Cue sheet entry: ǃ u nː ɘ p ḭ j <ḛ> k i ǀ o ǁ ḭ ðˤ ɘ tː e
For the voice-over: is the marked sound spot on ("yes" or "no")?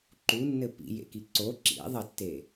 yes